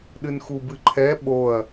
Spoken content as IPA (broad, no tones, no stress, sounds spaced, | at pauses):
ɗ ɨ n x u b ɨ ǃʰ ɛ ɓ o ɐ̯